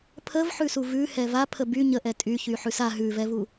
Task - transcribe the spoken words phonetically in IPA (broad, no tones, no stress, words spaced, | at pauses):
pʰəvħʉsu vʉhɛ vapʰə by ɲəʔɛ tʼyçyħʉs a ɦʉvɛvu